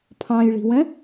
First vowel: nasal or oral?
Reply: nasal